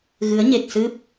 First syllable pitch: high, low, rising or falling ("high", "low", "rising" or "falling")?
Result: rising